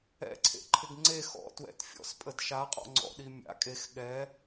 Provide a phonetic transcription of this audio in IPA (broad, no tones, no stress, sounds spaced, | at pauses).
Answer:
ɛ̰ ǀʰ ḛ ǃʰ ɪ ɡ ŋ͡ǀ e x ɔ̰ t w ɛ̰ t fʲ ɔ̰ s pʼ ə d ʃ a qʼ ɔ̰ ŋ͡ǀ ɔ̰ ɗ i mʲ a̰ kʼ e x ɠ ɛ